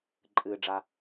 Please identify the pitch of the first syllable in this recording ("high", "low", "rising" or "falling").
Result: low